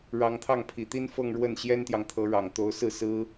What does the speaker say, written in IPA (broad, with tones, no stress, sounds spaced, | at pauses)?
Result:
ɻ ɑ˧˥ ŋ t̪ʰ ɑ˥˩ ŋ pʰ i˨˩ t̪ i˥ n f ɤ˥˧ ŋ ɻ w ə˥˩ n ɕ j ɛ˥ n t̪ j ɑ˨ ŋ t̪ʰ ɤ˧˥ ɻ ɑ˨˩ ŋ t̪ o˧˥ ʊ̯ s ɹ̩˥˩ s ɹ̩˥